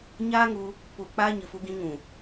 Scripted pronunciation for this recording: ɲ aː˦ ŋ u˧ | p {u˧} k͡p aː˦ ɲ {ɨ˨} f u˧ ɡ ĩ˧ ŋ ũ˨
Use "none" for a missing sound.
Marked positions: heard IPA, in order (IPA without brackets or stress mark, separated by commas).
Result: u˧, ɨ˨